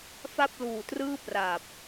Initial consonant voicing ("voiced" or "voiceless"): voiceless